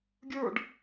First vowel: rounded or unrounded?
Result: unrounded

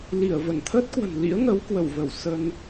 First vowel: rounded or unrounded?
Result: unrounded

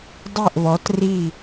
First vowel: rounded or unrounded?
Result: unrounded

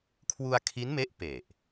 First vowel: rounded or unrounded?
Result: rounded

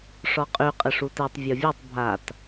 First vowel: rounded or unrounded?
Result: rounded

